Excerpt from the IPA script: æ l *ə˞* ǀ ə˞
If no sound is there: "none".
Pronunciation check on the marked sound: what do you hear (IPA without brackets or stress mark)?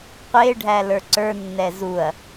ə˞